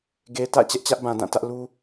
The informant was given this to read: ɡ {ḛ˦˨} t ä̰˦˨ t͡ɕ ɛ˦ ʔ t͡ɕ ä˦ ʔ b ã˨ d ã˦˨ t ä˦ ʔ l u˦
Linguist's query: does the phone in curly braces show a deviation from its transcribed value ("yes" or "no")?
yes